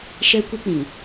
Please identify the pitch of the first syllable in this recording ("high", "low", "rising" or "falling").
high